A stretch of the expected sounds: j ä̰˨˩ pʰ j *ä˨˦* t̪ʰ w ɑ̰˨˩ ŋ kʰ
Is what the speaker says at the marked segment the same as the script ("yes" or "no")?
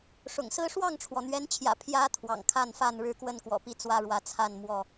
yes